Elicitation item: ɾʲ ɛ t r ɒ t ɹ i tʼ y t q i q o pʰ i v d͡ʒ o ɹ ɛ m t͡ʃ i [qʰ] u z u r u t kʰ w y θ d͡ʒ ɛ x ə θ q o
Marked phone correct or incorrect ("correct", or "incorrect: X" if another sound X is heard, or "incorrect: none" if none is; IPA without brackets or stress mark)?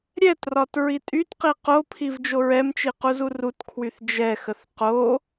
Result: incorrect: q